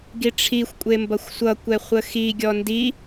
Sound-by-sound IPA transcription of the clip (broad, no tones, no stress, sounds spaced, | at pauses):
ɡ i ʈ͡ʂʰ i xʷ kʷʼ e m b ʌ xʷ sʷ ʌ kʷ ɛ χʷ ə x i ɡʲ ɔ n d i